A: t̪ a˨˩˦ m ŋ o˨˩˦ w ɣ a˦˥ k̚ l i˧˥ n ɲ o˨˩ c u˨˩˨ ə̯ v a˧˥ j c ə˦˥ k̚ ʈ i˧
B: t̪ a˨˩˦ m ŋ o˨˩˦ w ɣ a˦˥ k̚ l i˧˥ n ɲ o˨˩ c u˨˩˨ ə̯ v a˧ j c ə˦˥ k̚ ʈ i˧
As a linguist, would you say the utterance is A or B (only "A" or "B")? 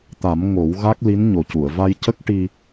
B